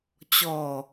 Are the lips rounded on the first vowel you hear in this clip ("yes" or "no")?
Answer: yes